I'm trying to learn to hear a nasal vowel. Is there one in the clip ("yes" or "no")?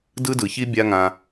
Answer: yes